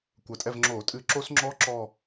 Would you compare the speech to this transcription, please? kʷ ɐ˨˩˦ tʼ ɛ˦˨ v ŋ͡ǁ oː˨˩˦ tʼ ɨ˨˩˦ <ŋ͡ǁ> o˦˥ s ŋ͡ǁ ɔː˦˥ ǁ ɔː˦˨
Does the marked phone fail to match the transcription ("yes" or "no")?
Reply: yes